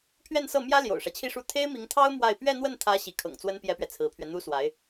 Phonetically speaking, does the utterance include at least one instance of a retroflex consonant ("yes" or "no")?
yes